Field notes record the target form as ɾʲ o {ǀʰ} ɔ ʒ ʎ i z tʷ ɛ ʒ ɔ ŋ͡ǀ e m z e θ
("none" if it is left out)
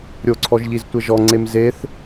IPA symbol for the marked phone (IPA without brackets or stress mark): ǀʰ